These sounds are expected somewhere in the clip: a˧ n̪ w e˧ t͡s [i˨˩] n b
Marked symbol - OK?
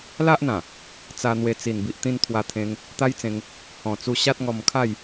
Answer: yes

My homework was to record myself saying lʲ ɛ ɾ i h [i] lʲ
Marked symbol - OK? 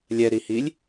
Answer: yes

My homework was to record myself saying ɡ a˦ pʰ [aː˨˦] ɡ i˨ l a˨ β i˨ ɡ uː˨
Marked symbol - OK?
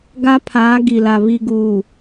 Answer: yes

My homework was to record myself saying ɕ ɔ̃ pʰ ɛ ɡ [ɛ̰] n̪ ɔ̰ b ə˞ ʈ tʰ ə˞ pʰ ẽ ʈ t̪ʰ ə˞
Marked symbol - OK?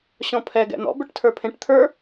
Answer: yes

